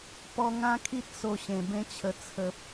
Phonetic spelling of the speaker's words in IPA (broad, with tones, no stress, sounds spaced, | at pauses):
p ɔ˧ ŋ ã˦ kʰ i˦ t̚ s o˧ ɕ ẽ˨˩ b ẽ˦ t͡ɕʰ ə˧ t͡sʰ ə˨ p̚